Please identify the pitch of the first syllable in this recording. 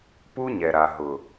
high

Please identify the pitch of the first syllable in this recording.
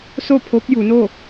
falling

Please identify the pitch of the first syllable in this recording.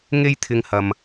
high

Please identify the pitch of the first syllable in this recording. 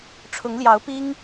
rising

